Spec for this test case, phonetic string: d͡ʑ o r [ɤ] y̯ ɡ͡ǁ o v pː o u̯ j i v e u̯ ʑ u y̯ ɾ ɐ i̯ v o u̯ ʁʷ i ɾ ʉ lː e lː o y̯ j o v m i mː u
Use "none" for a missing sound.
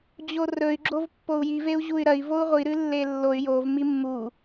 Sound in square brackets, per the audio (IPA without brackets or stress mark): ɵ